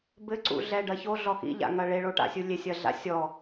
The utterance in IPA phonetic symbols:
b ɘ ǀ ṵ ɮ ɛ ɖ ɐ ç o ɮ ɔ x ḭ ʎ a̰ ŋ ɐ ɭ e ɭ o ʈ a̰ sʲ u lʲ e sʲ ɐ ɮ a̰ sʲ ɔ

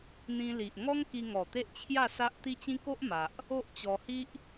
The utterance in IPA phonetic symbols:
n̪ ĩ˧ l i˨ ʔ ŋ ɔ˦ ŋ k i˧ ŋ ɔ˨˩ t̪ e˦ ʔ t͡ɕʰ j a˥˧ s a˦ ʔ t̪ i˦ t͡ɕ ĩ˦ k o˦ ʔ m a˨ ʔ | o˦ ʔ t͡ɕ ɔ˧ h i˦ ʔ

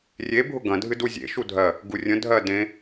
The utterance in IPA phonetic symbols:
rʲ e bʱ ʊ ɡ ɐ̃ dʱ ɨ d u zʲ ḛ ʃ u dʱ ɜ | ɡ u rʲ ə̃ dʱ ɜ d ẽ

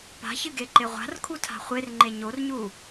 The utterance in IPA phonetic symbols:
p a̤ ç ɨ ɡ e ǃ e ʁʷ a̤ r kʰ u tʰ a̤ χʷ e r ŋ͡ǃ e ɲ o r ɲ u

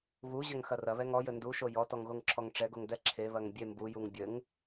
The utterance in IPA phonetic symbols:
β u ʑ ɐ ŋ x ɐ r ɐ β ɛ ŋ ɔ j ɘ n d u ʃ o j ɔ t ɔ ŋ ɣ o ŋ ǁʰ ɔ ŋ ʈ͡ʂ ɛ ɡ o ŋ d ɛ ǁʰ e β ɐ ŋ bʲ e m b u j u ŋ bʲ ɘ ŋ

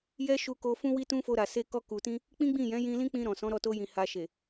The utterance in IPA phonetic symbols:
j ɛ˦ ʃ u˧ k o˧ f ũ˦ w i˦ t ũ˦ f o˧ ɾ a˨ s e˧ k ɔ˧ k u˨ t ĩ˧ | k͡p ĩ˦ ɡ͡b ĩ˦˨ j ɛ̃˨˦ j ĩ˧ l ĩ˦ k͡p ĩ˧ ɾ ɔ̃˨ s ɔ̃˨˦ ɾ ɔ˧ t o˧ j ĩ˨ h a˨ ʃ e˨

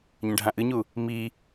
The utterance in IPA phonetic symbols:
ɲ ɐ̃ ɖʱ ã ʔ ɨ ɲ u | m i

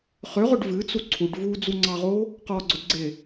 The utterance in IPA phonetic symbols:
χ ʏ ʁ ʊ ɖ v ɨ t͡s u ǀʰ u ɖ v u d͡z u ŋ͡ǀ ɑ ʁ o | q ɔ ɡ͡ǀ ʊ d ɡ͡ǀ e

